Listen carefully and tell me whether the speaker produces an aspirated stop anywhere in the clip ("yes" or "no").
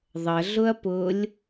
no